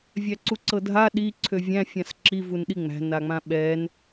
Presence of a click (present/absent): present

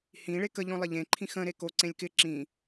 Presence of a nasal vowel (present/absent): present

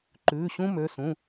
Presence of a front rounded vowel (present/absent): present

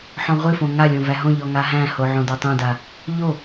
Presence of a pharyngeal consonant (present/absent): present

